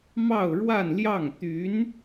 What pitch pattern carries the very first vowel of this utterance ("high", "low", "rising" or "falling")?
falling